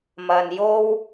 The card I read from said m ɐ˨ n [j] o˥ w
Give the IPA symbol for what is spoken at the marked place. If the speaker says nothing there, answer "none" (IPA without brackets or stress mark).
j